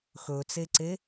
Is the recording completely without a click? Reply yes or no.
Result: no